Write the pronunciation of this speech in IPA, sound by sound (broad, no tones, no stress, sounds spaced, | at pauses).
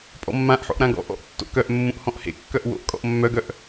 pʼ ɔ̰ mː ã ʔ ħ o̰ ʔ ɾ ã ɡ ɔ̰ ʔ ɔ̰ ʔ tː o̰ k œ ʔ mː ũ ʔ h ɔ̃ ʔ h ḛ kː œ ʔ w o̰ ʔ kʼ ɔ̰ ʔ mː œ ɡ œ ʔ